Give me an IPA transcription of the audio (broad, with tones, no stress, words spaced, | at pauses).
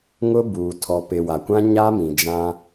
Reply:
ŋʊ˦buː˨ tʰɔ˨pɪ˨ wa˨kʷã˦ ɲa˦mĩ˨d͡ʒã˦